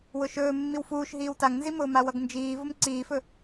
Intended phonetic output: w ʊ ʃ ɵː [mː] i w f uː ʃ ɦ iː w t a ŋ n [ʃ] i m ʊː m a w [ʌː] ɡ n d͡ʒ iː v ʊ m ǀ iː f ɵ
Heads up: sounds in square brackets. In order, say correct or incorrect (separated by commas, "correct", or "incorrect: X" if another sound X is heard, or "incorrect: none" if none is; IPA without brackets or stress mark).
correct, incorrect: z, incorrect: ʌ